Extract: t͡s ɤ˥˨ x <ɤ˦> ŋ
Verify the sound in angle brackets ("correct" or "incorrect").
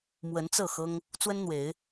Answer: correct